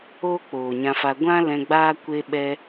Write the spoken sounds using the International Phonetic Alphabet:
oː˦ k͡p oː˨ ɲ ã˧ f a˧ ɡʷ ã˦ l ɛ̃˧ ɡ͡b aː˦ kʷ e˦ ɓ ɛ˦

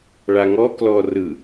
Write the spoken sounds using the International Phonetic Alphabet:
ɭ a ŋ ɔ k l ɔ r ɯ

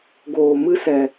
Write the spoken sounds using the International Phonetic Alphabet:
ɡ oː˨ m ɨ˦ s ɛ˨

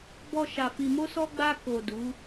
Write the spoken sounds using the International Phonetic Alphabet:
b ɔ˧ ʃ a˨ f i˨ m o˧ s ɔ˧ ɡ͡b a˧ k o˨ d u˨˦

